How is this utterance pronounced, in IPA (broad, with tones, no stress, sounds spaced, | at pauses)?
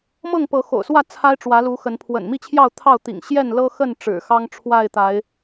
m ɤ˥˨ ŋ p ɤ˨˦ x o̰˨˩ ʊ̯ s w ä˥˨ t͡sʰ a˦ ɪ̯ ʈ͡ʂ w ä˨˦ l u˨˦ x ə˨˦ n pʰ w ə̰˨˩ n m i˥˨ t͡ɕʰ j ɑ˥˨ ʊ̯ t̪ʰ ɑ˥˨ ʊ̯ t̪ ḭ˨˩ ŋ ɕ j ɛ˥˨ n l ɤ˦ x ə˥˨ n ʈ͡ʂ ɻ̩˨˩ x ɑ˦ ŋ ʈ͡ʂʰ w a˥˨ ɪ̯ t̪ a˨˦ ɪ̯